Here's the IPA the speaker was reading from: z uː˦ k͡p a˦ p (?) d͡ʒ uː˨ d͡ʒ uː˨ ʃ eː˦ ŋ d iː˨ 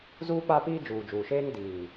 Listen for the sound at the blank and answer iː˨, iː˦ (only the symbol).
iː˦